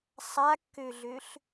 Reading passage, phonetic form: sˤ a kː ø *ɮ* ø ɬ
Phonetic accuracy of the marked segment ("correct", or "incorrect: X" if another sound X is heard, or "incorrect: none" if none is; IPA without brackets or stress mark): correct